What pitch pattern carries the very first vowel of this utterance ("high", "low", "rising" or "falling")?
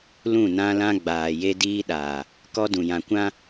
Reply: falling